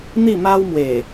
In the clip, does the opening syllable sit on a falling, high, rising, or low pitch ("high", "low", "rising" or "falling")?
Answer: falling